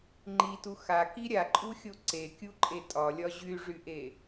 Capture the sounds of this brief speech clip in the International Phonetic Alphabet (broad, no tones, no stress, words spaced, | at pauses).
ŋ͡ǃitu xaki ɾʲaǃʼuxʲo ǀekʲuǃʼe tʼɒlʲɒ ʑyʐyʔe